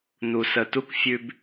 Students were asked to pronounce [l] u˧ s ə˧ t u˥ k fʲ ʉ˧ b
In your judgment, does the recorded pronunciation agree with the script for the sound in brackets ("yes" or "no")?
no